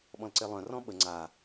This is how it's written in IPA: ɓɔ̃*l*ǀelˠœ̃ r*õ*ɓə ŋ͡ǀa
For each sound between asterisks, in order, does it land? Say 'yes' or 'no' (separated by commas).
yes, no